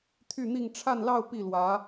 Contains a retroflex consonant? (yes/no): yes